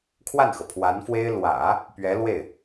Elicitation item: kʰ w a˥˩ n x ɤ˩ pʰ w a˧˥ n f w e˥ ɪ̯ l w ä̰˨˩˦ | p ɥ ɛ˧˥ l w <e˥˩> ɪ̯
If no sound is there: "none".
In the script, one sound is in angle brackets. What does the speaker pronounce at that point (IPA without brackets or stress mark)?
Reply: e˥˩